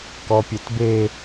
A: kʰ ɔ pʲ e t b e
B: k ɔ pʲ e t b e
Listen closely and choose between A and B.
B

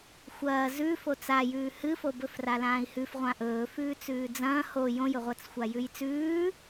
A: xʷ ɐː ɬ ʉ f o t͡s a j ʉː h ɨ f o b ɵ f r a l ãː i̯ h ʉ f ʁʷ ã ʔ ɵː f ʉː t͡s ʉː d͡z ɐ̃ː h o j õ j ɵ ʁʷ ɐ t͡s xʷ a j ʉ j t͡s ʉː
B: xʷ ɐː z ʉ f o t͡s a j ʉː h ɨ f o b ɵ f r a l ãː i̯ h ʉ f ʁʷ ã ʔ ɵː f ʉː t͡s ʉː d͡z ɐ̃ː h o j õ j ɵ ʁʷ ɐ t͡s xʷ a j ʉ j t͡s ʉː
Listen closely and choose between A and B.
B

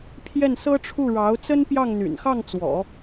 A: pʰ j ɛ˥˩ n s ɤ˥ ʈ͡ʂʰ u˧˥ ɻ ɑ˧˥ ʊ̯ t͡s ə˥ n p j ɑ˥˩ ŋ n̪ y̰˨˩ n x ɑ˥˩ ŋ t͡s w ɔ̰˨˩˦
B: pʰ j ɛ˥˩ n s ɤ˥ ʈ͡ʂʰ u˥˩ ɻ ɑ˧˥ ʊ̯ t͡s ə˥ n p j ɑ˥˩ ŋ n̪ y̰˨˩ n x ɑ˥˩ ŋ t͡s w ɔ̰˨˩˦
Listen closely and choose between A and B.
B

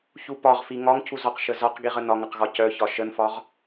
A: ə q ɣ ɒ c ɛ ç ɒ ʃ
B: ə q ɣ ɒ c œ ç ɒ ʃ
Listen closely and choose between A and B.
B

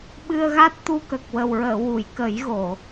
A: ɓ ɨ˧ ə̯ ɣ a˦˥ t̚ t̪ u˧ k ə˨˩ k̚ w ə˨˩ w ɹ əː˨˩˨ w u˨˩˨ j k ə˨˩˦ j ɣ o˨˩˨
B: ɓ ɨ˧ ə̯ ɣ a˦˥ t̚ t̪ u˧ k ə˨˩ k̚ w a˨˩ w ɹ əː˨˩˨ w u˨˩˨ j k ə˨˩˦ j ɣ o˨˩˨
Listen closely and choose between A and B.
A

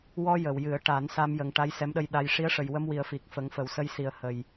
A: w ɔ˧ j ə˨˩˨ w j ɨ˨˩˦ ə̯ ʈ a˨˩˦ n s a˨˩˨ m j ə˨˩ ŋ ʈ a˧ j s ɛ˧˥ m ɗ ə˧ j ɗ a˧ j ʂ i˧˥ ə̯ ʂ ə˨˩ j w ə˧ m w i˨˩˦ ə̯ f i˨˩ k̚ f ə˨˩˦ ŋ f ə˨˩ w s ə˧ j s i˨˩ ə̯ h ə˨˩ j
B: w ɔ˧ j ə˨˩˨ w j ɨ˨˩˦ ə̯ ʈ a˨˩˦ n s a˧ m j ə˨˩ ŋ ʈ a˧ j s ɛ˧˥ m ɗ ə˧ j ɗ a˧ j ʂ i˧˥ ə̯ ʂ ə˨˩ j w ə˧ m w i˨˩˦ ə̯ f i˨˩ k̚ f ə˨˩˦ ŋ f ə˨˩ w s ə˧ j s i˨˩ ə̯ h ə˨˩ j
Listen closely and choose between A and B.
B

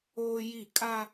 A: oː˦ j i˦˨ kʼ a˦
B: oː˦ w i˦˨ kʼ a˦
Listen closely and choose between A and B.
A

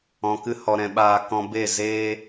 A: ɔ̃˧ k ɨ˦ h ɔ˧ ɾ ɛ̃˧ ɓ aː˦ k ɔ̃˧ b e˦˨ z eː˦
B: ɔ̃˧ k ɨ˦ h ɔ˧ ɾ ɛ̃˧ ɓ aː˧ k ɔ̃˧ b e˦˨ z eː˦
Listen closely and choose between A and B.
B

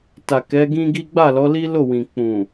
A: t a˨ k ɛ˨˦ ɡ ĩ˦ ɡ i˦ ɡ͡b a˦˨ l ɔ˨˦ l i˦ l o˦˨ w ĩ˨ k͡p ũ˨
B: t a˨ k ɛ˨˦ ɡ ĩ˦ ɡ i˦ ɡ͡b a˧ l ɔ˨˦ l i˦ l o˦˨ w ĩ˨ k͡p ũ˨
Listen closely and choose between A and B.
A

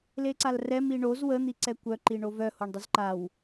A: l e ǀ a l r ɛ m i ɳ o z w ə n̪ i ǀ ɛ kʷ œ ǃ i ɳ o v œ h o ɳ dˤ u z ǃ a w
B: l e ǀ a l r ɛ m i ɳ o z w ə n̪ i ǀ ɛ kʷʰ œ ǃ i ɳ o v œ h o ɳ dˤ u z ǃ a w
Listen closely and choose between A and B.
A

